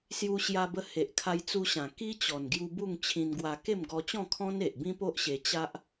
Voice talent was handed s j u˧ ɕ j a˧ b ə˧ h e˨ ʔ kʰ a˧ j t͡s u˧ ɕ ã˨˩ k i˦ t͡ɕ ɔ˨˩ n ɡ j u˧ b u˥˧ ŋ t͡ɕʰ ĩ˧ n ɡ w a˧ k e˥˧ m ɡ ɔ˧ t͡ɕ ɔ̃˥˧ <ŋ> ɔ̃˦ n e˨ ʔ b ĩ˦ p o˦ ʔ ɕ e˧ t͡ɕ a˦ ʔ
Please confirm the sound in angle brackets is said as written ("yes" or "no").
no